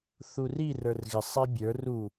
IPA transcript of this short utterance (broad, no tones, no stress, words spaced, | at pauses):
θuri rə˞rɣɪ sˤibʲə˞ ru